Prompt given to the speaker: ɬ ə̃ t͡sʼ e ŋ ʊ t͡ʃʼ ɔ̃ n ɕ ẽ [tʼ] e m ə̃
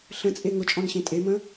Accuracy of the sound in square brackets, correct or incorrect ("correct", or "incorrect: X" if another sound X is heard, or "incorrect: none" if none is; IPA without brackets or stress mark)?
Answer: correct